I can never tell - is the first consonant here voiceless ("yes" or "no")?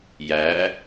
no